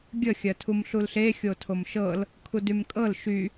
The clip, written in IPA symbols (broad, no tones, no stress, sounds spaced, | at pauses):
ɡʲ ə xʲ ɜ tʰ u m ɬ u l ɬ e xʲ o tʰ o m ʃ ɤ l | kʰ u d y m kʼ ɤ l ʃ y